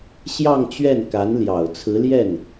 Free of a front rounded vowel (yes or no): yes